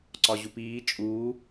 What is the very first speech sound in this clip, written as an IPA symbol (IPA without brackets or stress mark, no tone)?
ǀ